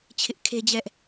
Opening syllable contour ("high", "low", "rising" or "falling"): high